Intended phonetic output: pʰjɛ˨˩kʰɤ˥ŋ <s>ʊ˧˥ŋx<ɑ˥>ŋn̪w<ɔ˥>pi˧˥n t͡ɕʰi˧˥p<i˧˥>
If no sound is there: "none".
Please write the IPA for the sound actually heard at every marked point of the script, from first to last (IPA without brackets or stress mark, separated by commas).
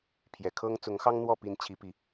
t͡s, ɑ˥, ɔ˥˩, i˧˥